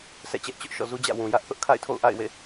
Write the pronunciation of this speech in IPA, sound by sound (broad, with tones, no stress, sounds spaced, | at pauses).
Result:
s ɛ̰˦˨ t͡ɕ ɛ˦ ʔ t͡ɕ ʊ˦ ʔ ʃ ɔ̰˦˨ z u˦ d͡ʑ ä̰˦˨ w ũ˨ j ä˦ ʔ θ ʊ˦ ʔ kʰ a̰˦˨ ɪ̯ tʰ o̰˦˨ ʊ̯ ʔ a̰˦˨ ɪ̯ w ḛ˦˨